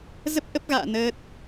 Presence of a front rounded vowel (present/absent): absent